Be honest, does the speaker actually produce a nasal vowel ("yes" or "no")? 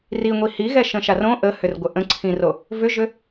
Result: yes